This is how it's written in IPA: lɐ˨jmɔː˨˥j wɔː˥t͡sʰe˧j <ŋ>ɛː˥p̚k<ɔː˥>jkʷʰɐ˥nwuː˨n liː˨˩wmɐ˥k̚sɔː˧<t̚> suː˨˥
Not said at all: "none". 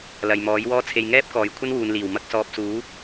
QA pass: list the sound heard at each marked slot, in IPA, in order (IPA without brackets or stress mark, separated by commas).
ŋ, ɔː˨, p̚